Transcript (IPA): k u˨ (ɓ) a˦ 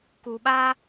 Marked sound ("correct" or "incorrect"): correct